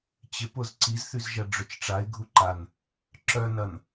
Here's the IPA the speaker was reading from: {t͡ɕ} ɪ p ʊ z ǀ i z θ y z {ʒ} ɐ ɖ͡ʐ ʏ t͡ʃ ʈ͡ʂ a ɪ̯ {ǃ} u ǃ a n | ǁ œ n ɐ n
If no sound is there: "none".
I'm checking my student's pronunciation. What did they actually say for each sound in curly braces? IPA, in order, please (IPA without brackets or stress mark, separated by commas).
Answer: t͡ɕ, ʒ, ɡʱ